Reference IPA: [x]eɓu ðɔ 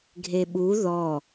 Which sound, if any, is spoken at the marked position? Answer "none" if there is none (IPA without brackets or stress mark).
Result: ɡʱ